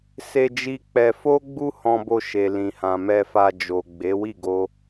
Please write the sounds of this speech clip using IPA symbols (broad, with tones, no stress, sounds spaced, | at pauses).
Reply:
s e˧ d͡ʒ i˦ k͡p ɛ˧ f o˦ ɡ͡b u˦ h ɔ̃˧ b o˧ ʃ e˨ l ĩ˨ h ã˨ m ɛ˧ f a˧ d͡ʒ o˨ ɡ͡b e˨˦ w i˦˨ ɡ o˧